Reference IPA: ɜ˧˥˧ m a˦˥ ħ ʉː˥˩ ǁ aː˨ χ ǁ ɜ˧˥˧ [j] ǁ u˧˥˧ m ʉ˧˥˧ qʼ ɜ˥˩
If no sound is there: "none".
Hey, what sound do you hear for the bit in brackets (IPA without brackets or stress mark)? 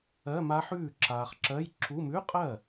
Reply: j